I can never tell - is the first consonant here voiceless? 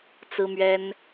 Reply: yes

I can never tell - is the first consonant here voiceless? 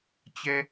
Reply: yes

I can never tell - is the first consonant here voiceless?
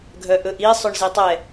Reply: no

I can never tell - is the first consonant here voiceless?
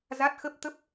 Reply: no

